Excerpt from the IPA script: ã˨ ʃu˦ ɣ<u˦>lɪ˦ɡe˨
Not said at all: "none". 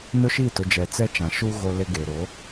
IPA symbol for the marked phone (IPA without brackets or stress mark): o˦